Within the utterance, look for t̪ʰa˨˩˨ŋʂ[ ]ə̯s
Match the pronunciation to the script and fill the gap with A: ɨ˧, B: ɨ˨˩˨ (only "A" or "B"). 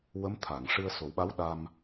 A